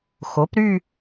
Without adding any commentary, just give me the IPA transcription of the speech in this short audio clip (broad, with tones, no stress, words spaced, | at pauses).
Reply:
xo˩˥pɾy˥˧